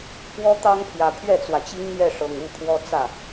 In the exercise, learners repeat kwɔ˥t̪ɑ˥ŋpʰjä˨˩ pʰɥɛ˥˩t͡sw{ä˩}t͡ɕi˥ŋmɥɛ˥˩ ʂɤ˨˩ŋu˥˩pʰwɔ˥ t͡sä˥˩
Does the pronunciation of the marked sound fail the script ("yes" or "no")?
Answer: no